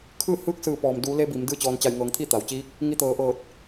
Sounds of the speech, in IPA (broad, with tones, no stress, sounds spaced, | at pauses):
kʰ ɯː˥˨ h ɯː˥˨ k̚ s ɯː˧˩ p ɔː˩ m d uː˩˧ l e˧ b i˩˧ m d ɯː˥˨ t͡ɕ ɔː˧ n t͡ɕ a˧˩ j ŋ ɤː˩˧ ŋ t̪ʰ i˥˨ t̪ a˩ w t͡ɕ iː˧˥ k̚ | ŋ i˧ t̪ ɤː˩˧ ʔ ɤː˧˩ t̚